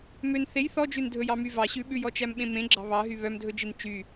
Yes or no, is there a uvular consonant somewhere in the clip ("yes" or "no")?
no